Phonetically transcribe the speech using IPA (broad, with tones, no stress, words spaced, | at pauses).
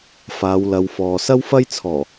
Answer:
faː˨˧wlɐ˨˧wfɔː˨ sɐ˥wfɐ˥jt͡sʰɔː˨˩